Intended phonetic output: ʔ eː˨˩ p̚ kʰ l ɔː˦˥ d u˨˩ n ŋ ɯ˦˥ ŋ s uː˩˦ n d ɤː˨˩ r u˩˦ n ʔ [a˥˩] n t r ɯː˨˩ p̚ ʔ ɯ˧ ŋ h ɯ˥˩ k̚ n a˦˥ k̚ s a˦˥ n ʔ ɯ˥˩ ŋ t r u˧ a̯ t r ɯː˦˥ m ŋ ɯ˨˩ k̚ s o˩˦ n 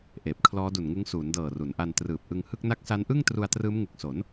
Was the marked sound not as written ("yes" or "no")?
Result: yes